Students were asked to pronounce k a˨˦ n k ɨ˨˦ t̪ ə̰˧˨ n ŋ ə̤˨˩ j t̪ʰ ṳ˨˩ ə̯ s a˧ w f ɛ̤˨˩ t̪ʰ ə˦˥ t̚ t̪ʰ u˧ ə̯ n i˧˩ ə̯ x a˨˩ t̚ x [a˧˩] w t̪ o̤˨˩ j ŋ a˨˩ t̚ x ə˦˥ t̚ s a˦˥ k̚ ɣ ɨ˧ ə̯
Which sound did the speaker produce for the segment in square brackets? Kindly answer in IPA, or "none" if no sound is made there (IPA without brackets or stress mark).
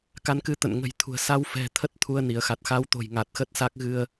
a˨˦